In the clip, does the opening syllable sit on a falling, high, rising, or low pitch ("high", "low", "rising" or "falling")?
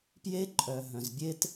high